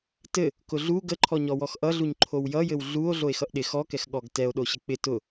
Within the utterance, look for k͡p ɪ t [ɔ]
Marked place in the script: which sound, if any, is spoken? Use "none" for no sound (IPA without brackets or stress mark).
ʊ